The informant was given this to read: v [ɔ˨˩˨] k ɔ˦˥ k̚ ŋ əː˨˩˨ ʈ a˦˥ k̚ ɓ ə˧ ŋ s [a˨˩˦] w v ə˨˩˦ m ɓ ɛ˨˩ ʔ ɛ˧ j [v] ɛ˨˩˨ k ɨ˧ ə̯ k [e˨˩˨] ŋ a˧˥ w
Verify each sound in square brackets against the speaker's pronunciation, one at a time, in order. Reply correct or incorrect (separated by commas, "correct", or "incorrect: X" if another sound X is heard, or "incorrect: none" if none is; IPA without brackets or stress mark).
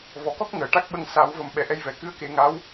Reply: correct, correct, correct, incorrect: e˨˩˦